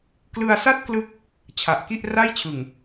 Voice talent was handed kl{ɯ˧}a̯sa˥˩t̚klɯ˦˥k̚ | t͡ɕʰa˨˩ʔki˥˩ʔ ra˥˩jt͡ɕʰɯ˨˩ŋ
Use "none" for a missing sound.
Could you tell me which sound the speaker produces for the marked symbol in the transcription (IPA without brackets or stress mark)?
ɯ˧